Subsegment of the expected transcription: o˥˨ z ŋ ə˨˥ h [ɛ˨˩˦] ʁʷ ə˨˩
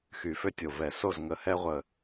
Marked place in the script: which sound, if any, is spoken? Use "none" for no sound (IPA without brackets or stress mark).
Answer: ɛ˦